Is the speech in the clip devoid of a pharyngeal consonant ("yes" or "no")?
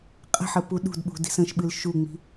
no